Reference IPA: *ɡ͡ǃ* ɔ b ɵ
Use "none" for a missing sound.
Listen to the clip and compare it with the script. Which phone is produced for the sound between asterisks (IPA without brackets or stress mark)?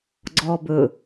ɡ͡ǀ